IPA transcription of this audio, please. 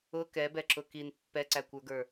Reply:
ʊ k ɛ b ɛ ǁ ʊ k i n pː ɛ ǀ æ kʷ ə˞ ɡ ə˞

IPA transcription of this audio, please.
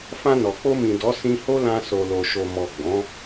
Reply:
f ã˧ n ɔ˨ k͡p o˧ m ĩ˨ d ɔ˨˦ s ĩ˧ h o˦ l ã˧ s o˨ l o˨ ʃ o˨ m ɔ˨ ɡ͡b ɔ̃˨˦

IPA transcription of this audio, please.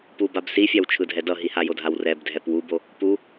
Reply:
p u b a b s i fʲ a w t͡ʃʰ ɯ dʱ ɛ d ʌ ɦ i h a j o dʱ a w r ɛ b dʱ ɛ p w u b o | p u

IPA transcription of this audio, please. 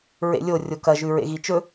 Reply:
ɹ ḛ lʲ o rʲ o k ɐ ʒ ʉ ɹ ḛ ɣ i t͡ʃ ɵ

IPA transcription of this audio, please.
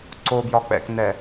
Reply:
ǀ o b j ɒ k͡p ɛ̰ k n ɛ

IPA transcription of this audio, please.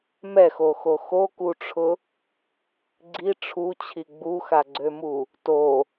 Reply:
m ɛ x o x o x o k u ʈ͡ʂʰ ʊ | ɡ͡ǀ i ʈ͡ʂʰ u t͡ɕʰ i ɡ͡b u x a ɡ͡ǀ ø m u | t o

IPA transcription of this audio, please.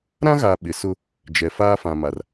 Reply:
ɾ ã˦ ɣ aː˨ ɓ ɪ˨ s ʊ˦ | d͡ʒ ɛ˨ f aː˦ f ã˨ m a˨ r

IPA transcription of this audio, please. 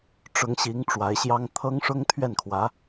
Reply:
ʈ͡ʂ ʊ˧˥ ŋ ɕ i˧˥ ŋ ʈ͡ʂ w a˧˥ ɪ̯ ɕ j ɑ˥ ŋ t̪ʰ ɤ˥ ŋ ʂ ʊ˥ ŋ t̪ʰ ɥ ɛ˥˩ n kʰ w ä˧˥

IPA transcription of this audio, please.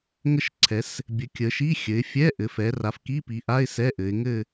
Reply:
ŋ ə˦˨ ʃ ǀʰ ɛ˩˧ s | bʲ ɘ˩˧ kʲ ə˩˧ ʃ i˧˥˧ xʲ ɘ˩˧ ɪ̯ fʲ ɛ˧˥˧ ʔ ɘ˩˧ f ɛ˩˧ r a˩˧ f k i˧˥˧ p i˩˧ ʔ a˧˥˧ ɪ̯ s ɛ˧˥˧ ʔ ɘ˩˧ ɪ̯ ŋ ɘ˦˨

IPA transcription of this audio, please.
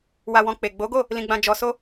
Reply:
w a˧ w ɔ̃˧ k͡p e˨ ɡ͡b o˨˦ ɡ o˦˨ | l ĩ˧ ɡ͡b ã˧ d͡ʒ ɔ˧ s o˦

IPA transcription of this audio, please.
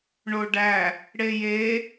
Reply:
ɳ o ɖ æ | ɽ e j e

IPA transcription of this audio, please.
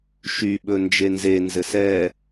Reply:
ʃ y ɓ ɵ n d͡ʒ e n z e n z ɘ s ɛ

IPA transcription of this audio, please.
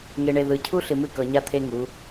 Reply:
ŋ e˨ ɳ e˨ ð ɯ˨ cʰ u˦ ɬ ɨ˨ m ɨ˦˨ k ɤ˨ ɲ a˦ t̪ʰ e˦ ŋ u˨˦

